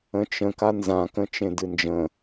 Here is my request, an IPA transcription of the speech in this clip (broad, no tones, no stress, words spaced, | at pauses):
ə̃t͡ʃə̃ kanzã kə̃t͡ʃẽdɨnd͡ʒə̃